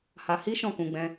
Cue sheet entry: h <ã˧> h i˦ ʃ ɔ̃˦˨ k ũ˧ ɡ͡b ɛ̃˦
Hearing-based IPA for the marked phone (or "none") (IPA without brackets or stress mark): a˧